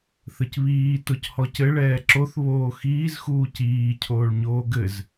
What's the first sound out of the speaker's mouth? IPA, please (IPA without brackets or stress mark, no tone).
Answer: θ